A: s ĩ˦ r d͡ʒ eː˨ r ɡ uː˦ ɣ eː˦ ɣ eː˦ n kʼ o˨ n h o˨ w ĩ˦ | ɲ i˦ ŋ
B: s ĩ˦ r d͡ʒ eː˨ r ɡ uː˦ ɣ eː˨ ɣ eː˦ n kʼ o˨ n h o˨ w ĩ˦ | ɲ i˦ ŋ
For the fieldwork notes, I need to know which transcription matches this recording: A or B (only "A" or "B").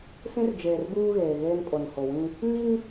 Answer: B